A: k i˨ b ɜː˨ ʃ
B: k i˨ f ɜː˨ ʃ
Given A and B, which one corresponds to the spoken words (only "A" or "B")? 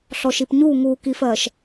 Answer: B